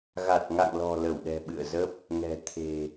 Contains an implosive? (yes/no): yes